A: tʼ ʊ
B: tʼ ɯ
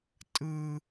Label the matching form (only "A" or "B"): B